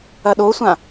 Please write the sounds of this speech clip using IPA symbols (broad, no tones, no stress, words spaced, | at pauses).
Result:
ɐɗosʷã